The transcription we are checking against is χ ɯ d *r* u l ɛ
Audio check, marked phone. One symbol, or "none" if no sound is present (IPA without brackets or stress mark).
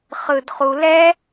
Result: χ